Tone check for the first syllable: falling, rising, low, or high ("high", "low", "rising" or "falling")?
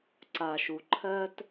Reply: low